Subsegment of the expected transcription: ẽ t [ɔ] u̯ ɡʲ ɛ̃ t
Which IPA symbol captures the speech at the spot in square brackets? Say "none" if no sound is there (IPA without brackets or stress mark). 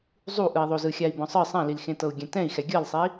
ɤ